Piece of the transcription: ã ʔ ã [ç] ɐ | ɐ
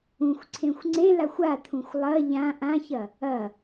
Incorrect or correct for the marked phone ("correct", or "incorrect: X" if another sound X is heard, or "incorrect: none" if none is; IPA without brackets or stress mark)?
correct